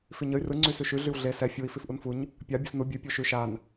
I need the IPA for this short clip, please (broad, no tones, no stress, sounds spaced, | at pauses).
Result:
f i ɲ ə y̯ r ɯ ŋ͡ǀ y s ʉ ʃ ʉ ɮ y w ɮ e s ɛ fʲ u i̯ f i f ʔ u n f u ɲ | pʲ a bʲ u s n u bʲ ʉ pʲ u ʃ ʉ ʃ a n